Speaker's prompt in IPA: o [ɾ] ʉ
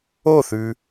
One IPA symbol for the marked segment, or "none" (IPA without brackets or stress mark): θ